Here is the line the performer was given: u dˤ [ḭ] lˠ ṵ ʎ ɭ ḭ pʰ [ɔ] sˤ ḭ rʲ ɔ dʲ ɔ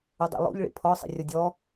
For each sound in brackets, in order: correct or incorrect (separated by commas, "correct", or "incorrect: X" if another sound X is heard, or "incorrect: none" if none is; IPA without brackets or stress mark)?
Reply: correct, correct